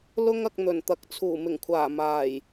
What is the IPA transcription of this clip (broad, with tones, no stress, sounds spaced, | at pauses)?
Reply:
l ʊ˥ ŋ ɐ˧ k̚ n̪ ɵ˨˩ n t̪ ɐ˨˥ k̚ t͡sʰ uː˨˩ m ɪ˨˩ ŋ kʷʰ aː˨˩ m aː˨˩ j